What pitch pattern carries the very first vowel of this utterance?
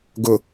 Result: low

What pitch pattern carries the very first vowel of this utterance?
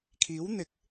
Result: rising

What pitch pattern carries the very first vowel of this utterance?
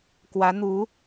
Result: rising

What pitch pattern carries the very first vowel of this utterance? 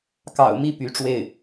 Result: low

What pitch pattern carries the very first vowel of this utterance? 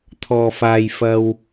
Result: low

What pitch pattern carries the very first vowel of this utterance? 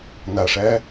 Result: low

